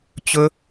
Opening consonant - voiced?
no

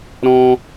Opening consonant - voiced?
yes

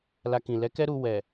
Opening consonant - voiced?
yes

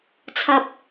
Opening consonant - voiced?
no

